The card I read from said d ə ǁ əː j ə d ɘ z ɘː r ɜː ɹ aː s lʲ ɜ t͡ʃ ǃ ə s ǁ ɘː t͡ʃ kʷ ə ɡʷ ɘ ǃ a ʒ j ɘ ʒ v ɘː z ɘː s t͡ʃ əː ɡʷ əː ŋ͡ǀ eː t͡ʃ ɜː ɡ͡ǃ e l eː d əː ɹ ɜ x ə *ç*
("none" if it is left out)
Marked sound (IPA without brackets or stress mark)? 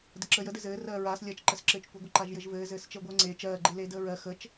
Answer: t͡ʃ